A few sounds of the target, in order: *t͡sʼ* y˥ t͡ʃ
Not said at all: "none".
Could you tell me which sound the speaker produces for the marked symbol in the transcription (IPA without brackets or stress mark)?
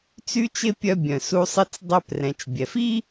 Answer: t͡s